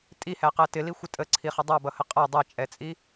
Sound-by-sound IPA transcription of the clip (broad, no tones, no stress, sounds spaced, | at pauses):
tʼ i h æ q æ t ɪ l i xʷ ɪ tʼ ə ǀʰ i χ ə dˤ ɑ b ʌ h ə qʼ ʌ dˤ ɛ t͡ʃʼ ɛ t͡sʼ i